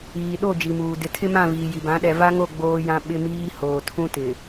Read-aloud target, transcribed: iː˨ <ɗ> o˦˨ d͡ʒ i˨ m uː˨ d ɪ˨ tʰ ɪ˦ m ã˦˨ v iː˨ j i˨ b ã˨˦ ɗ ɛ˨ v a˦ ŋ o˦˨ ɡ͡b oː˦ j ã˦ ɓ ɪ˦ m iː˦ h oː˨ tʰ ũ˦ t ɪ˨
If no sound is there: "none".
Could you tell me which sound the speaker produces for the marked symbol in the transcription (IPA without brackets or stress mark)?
ɗ